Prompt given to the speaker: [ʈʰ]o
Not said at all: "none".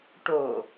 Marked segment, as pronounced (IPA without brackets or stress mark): ʈ